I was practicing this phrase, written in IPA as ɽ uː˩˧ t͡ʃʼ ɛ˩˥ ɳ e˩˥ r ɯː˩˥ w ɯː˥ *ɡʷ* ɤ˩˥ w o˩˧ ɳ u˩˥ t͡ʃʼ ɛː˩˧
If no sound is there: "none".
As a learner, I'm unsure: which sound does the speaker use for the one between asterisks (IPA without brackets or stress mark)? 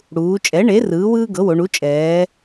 ɡ